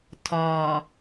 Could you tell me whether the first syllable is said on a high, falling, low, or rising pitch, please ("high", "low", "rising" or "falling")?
low